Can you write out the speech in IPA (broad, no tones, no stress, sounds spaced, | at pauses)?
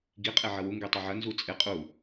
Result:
ɡ i qʼ e ʕ ɐ w u ŋ ɡ e tˤ ɐ ʕ ɐ n z u t͡sʼ e qʼ u